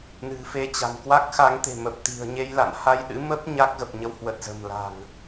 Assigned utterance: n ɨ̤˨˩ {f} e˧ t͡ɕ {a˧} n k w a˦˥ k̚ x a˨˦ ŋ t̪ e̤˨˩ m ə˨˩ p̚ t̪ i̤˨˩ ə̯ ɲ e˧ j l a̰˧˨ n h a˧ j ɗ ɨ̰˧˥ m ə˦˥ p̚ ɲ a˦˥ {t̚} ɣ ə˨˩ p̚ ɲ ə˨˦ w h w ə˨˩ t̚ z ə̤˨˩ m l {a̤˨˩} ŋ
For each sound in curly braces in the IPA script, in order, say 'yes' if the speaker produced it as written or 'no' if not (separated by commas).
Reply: yes, no, no, yes